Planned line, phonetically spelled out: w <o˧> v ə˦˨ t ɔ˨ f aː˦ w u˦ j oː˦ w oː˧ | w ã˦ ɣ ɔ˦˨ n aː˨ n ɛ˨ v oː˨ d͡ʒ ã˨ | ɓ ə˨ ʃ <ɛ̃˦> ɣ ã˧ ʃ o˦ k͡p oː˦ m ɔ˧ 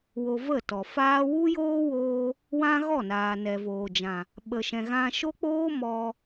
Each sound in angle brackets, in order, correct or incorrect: correct, incorrect: ɛ̃˨

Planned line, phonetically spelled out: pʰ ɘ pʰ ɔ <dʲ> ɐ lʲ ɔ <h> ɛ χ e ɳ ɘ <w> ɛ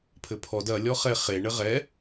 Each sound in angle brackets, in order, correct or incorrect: incorrect: d, incorrect: χ, incorrect: ʁ

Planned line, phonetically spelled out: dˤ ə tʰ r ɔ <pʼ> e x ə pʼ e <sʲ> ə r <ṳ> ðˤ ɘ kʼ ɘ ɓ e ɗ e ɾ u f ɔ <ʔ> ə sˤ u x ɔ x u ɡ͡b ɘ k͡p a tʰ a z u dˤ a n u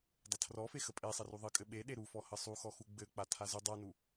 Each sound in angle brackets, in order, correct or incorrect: incorrect: f, incorrect: sˤ, incorrect: u, incorrect: h

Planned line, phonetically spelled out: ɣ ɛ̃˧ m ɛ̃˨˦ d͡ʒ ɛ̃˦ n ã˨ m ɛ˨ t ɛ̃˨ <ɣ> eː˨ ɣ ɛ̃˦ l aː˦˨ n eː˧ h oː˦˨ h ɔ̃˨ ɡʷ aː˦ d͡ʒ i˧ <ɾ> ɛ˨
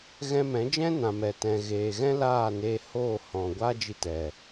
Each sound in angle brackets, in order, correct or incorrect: correct, incorrect: t

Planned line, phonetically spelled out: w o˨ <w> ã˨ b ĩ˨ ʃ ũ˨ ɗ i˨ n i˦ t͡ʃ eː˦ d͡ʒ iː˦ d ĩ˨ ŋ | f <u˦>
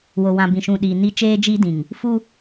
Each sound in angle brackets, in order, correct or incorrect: correct, correct

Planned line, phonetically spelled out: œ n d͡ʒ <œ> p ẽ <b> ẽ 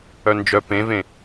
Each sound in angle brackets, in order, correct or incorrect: correct, incorrect: v

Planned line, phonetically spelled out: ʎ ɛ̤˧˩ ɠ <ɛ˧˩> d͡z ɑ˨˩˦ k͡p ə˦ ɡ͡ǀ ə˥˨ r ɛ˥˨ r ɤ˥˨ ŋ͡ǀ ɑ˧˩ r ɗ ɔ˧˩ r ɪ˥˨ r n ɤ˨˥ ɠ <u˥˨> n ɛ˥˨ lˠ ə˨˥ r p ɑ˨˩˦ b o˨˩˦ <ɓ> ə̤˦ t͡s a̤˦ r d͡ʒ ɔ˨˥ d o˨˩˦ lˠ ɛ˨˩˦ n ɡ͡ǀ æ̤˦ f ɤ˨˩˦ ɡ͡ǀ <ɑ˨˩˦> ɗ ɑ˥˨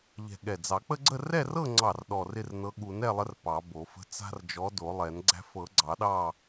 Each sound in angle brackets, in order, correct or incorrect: correct, incorrect: u˨˩˦, incorrect: f, correct

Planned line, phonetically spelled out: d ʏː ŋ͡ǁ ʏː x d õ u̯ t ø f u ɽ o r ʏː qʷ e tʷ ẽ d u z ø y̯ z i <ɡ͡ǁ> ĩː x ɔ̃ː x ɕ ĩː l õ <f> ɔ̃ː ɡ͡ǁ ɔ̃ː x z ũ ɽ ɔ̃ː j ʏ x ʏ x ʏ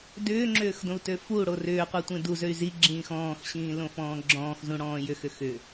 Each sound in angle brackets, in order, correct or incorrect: correct, correct

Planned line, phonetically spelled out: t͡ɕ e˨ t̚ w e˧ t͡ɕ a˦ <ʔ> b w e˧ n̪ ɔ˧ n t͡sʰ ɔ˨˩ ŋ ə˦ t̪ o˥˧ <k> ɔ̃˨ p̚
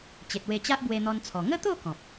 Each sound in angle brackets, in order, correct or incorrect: correct, correct

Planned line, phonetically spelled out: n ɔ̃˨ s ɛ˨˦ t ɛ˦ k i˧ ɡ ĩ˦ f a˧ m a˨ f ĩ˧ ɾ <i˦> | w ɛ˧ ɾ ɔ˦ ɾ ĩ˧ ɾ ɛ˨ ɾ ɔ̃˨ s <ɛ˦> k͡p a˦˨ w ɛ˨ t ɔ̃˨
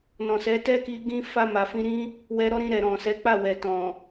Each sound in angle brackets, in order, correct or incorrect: incorrect: ĩ˦, incorrect: ɛ˨˦

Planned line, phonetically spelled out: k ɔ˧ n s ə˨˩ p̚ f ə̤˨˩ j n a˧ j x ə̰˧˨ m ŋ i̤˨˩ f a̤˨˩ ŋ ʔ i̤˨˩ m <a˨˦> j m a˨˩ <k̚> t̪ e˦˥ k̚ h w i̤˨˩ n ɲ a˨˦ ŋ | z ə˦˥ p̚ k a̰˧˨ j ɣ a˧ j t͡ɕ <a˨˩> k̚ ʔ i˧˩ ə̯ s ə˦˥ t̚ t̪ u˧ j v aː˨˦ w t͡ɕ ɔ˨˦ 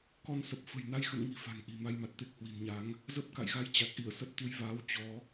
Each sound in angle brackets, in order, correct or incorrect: incorrect: a˧, incorrect: t̚, correct

